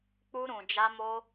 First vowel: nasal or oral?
oral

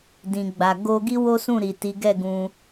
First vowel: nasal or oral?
nasal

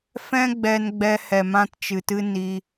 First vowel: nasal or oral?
nasal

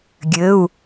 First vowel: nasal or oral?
oral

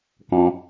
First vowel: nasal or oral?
nasal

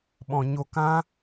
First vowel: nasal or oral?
nasal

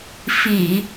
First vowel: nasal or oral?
oral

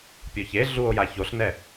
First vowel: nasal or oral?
oral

